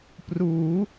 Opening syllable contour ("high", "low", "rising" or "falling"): rising